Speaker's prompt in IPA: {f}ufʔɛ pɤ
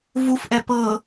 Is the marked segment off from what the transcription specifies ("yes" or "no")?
yes